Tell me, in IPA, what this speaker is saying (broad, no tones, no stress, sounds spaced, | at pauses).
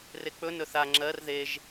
r e k͡p ɵ n ɵ θ a ŋ͡ǁ ɜ r ð e ʒ